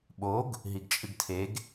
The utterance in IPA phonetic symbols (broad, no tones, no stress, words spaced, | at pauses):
ɓoɡ | ɦiɡt͡ʃʼɨɡtʰeɡ